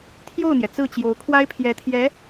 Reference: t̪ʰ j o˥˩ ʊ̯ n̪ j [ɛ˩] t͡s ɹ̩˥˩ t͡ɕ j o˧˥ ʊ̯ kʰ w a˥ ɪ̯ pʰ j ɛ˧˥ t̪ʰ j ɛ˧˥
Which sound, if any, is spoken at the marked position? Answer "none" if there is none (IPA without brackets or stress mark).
ɛ˩